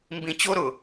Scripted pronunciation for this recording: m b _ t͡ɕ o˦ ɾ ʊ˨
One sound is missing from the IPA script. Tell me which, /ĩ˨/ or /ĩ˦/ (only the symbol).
ĩ˨